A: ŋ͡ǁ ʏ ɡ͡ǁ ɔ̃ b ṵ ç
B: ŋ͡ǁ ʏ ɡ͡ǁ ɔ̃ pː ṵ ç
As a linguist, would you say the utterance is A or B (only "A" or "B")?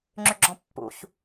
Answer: B